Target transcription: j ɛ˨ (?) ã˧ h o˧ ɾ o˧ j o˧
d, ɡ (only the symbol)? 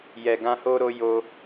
ɡ